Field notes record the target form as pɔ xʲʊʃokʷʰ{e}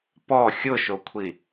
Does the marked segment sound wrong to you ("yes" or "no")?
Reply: yes